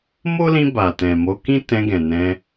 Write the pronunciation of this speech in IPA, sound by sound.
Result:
mo˦lĩ˧ ba˨tɛ̃˨ mo˨˦ kĩ˦ tɛ̃˧ɡɛ̃˨ nɛ̃˧

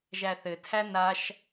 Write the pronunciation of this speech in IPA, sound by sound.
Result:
ʒæθɘtʰæ naʃ

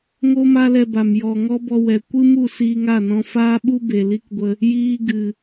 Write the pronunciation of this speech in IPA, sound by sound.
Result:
ŋo˦ma˦lɛ˧ba˨m jɔ˧ ŋɔ˦bɔ˧ wɛ˨ kʷɨ˦mu˦˨ siː˧ŋa˦˨nɔ̃˧ faː˦ɓu˦ be˨li˦kɡʷə˧ | jiː˦ ɡɨ˨

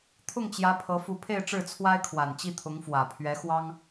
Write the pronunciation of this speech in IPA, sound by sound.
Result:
t̪ʰʊ˥˩ŋt͡ɕjä˧˥ pʰɤ˧˥ fu˧˥pʰe˥˧ɪ̯ʈ͡ʂɻ̩˥˩ t͡sʰwa˥ɪ̯kʰwa˨˩n t͡ɕi˥˩t̪ʰʊ˧˥ŋfwä˨˩ pʰɥɛ˧˥xwɑ˥ŋ

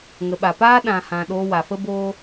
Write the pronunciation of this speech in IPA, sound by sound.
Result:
ŋə˨ɓa˨paː˦ ɗã˨hã˨ ɗoː˧wa˨fə˦boː˦

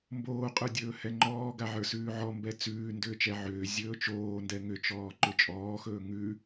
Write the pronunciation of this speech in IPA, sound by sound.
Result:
mboːqʼə˞dʲɵː hɛŋ͡ǃɔːɡaʕə˞ sʉːʕɔmbɛ t͡sʉː ndʏːt͡ʃɛʕʏː zʲɵːt͡ʃoːndɛ ŋʏt͡ʃɔː ǃʏt͡ʃʼɔːxɵː ŋʉ

